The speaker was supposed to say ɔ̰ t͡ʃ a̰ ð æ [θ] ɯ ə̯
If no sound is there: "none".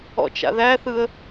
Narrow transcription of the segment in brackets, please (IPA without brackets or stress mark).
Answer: θ